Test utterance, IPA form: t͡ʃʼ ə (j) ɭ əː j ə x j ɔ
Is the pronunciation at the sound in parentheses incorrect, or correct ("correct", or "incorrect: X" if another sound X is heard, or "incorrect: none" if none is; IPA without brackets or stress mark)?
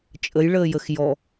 correct